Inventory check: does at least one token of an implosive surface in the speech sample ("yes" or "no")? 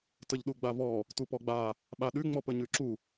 yes